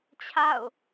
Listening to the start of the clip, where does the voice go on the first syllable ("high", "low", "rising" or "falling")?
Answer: falling